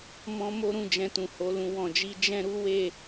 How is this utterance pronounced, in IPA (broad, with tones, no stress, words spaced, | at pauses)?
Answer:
mɔ̃˦mo˦ɾũ˦˨ d͡ʒɛ̃˨tũ˨ ho˧lũ˧ wɔ̃˨d͡ʒi˧ d͡ʒɛ̃˦ɾu˦ we˦˨